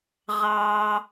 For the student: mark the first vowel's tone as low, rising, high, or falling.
low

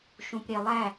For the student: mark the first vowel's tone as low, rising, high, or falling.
low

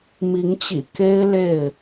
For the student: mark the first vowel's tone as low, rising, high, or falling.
rising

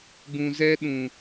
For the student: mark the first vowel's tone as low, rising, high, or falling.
low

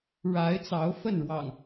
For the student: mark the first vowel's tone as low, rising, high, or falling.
rising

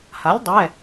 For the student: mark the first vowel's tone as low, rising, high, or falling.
rising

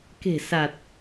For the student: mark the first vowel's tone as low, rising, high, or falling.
low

